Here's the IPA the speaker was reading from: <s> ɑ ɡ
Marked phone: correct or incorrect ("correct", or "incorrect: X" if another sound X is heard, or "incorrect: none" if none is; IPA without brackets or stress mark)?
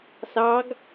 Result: correct